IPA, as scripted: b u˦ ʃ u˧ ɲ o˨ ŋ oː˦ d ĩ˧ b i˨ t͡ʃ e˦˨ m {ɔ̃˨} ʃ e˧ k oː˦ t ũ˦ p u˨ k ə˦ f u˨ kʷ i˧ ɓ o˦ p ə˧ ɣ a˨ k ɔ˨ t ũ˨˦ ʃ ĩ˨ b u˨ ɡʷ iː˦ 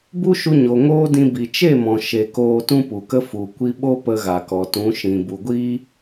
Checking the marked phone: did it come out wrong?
no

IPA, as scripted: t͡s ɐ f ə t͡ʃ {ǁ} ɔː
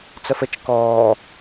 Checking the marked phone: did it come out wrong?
yes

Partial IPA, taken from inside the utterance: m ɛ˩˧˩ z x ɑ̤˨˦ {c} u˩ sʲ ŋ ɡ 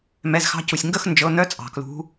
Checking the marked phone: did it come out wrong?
no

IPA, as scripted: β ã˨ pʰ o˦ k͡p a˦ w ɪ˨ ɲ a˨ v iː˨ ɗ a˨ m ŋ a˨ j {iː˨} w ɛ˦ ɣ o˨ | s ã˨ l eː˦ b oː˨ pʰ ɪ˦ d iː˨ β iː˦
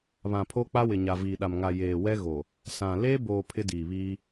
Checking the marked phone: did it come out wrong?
yes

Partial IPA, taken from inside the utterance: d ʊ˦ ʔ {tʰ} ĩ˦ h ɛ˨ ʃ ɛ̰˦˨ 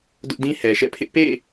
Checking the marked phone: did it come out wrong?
yes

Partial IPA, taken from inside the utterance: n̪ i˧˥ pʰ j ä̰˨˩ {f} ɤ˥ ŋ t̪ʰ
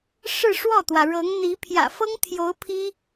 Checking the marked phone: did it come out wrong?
no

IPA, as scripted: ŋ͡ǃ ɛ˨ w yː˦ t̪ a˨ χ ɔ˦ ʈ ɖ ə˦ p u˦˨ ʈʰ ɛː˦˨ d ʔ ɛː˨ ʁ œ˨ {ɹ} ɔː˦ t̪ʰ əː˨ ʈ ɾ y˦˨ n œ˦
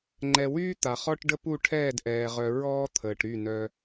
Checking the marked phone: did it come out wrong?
no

